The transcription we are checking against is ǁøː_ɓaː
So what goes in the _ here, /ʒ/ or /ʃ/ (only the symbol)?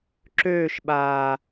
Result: ʃ